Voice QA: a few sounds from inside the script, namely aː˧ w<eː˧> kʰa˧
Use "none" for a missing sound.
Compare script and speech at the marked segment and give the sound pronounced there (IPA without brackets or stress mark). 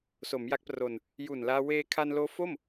eː˧